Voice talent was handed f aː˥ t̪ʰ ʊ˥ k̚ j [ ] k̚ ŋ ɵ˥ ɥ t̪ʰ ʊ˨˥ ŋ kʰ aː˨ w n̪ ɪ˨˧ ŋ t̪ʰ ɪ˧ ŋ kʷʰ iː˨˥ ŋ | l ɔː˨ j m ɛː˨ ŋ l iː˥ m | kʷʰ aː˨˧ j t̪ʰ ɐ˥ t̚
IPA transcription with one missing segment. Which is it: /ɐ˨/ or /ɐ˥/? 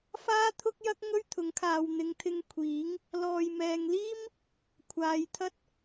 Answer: ɐ˥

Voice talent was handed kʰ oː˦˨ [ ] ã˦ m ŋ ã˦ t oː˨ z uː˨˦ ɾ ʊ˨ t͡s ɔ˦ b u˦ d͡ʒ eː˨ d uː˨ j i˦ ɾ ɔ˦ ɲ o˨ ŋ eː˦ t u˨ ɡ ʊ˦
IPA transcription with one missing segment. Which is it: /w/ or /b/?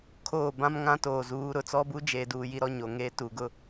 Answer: b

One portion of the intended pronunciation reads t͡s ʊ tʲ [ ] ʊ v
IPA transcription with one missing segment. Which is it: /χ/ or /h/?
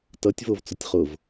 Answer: χ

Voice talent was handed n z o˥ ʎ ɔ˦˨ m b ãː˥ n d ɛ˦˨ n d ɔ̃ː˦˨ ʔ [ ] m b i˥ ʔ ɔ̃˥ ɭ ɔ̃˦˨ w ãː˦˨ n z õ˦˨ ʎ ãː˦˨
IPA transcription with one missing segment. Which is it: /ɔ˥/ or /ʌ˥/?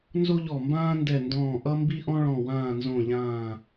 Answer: ʌ˥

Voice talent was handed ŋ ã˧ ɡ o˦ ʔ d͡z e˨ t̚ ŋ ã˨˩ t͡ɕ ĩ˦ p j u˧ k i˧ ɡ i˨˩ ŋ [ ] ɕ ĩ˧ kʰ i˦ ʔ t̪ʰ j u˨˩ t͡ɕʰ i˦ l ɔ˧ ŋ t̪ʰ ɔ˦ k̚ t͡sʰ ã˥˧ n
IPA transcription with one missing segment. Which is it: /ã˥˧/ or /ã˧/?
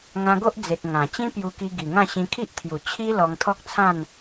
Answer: ã˥˧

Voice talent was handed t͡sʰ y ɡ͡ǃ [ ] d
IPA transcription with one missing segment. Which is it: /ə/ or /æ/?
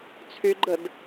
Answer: ə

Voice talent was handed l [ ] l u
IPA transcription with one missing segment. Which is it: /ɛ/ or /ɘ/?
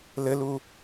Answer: ɘ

